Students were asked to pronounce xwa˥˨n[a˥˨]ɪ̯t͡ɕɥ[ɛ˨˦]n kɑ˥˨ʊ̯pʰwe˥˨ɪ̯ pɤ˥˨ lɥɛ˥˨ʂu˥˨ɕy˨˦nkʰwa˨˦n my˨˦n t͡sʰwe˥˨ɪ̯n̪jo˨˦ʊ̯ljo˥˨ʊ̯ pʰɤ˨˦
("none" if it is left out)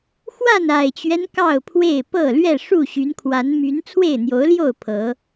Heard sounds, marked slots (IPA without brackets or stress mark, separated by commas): a˨˩, ɛ˦